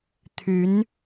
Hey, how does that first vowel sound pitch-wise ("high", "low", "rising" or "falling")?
rising